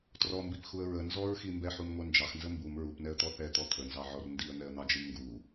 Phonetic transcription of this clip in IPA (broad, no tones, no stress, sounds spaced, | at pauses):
t r ɔ m b i p x u ə̯ ɹ ə n z ɔ ɹ x i m b ɛ ħ u m ŋʷ ɛ n d͡ʒ ɑ x n z ə m b u m ɹ u p n ɛ ə̯ t̪ ɔ θ ɛ t̪ ɔ t̪ʰ ə n z ɑ ʕ ɔ r n d i ə̯ n̪ ɛ ə̯ n̪ ɑ d͡ʒ i m ŋ ɡ u